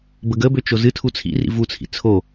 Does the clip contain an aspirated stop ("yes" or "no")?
yes